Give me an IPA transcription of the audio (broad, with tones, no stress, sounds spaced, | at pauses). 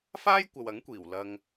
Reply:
f aː˥ j kʷ ɐ˨ w ɐ˨˥ ŋ kʷ iː˨˩ w l ɐ˧ ŋ